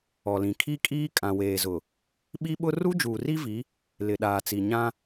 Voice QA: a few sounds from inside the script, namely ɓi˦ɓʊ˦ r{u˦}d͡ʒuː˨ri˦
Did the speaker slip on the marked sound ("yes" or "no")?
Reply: no